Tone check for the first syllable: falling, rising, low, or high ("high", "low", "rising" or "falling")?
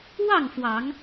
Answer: falling